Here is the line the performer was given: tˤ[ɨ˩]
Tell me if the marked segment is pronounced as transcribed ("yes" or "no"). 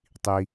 no